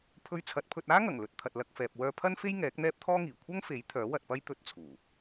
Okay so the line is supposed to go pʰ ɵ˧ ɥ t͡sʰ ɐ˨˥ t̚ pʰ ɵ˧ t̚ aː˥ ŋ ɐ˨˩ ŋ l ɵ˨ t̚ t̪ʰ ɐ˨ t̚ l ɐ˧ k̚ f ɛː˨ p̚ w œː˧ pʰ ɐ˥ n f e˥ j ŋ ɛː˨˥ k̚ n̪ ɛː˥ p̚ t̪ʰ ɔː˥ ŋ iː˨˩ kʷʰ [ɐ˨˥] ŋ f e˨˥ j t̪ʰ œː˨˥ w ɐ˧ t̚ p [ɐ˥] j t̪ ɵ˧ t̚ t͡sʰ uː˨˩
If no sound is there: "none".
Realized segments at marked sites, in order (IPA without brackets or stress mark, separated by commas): ɐ˥, ɐ˥